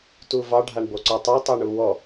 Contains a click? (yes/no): yes